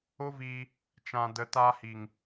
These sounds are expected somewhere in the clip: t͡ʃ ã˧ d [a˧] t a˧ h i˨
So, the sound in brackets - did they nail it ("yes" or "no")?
no